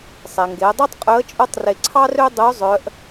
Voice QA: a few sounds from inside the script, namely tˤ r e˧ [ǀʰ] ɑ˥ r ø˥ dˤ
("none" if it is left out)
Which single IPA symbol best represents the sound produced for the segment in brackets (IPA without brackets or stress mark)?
ǀʰ